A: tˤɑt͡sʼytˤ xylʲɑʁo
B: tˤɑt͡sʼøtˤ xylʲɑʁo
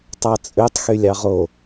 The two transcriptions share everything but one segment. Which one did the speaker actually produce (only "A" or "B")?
B